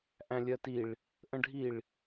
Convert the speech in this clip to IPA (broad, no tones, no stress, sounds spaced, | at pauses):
ʔ æ̃ lʲ ɜ t i ɭ | ʔ ə̃ ɖʱ i ɭ